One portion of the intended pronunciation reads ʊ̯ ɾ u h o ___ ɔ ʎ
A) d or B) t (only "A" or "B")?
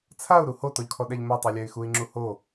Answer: B